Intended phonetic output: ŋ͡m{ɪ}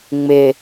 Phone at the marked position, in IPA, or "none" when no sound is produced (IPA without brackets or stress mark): ɪ